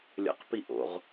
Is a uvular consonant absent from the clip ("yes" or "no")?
no